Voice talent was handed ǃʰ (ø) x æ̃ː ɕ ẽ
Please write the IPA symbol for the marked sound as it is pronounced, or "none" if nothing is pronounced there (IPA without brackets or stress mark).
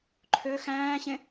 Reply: ø